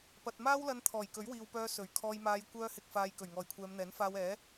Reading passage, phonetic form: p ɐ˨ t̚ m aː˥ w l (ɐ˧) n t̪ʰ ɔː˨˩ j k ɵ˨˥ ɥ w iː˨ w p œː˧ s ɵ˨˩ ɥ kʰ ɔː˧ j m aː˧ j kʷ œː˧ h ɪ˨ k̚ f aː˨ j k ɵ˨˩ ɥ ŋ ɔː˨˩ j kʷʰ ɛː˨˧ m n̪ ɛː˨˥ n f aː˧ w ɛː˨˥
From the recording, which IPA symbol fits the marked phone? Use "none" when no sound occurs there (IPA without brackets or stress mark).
ɐ˧